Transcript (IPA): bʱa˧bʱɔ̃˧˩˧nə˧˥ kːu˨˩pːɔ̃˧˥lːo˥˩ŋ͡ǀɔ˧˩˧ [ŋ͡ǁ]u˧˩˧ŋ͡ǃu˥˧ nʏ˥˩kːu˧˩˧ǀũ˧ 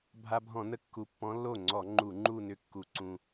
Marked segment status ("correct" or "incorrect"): incorrect